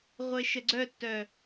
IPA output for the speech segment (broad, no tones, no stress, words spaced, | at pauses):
ʁʷeʃəɡ͡ǀœtːœ